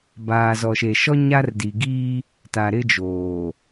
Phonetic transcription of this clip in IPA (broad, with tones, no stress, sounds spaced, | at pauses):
b aː˨ z ɔ˨ ʃ e˨ ʃ ɔ˦ ɲ a˦ r d i˨ ɡ iː˦ | t a˨ ɾ ɪ˦ d͡ʒ oː˨